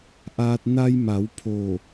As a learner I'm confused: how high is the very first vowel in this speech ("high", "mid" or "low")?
low